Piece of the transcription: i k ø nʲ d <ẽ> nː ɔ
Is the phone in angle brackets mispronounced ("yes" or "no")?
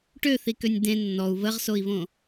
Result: no